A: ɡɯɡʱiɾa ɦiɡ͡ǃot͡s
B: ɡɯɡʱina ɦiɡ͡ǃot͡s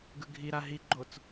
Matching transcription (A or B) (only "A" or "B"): A